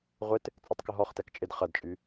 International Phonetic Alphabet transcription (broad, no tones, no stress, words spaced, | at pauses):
ʁʷɪt | t͡sʼœtˤkʊɦɔχ tɛkt͡ʃʼɪd χɐdt͡ʃʼy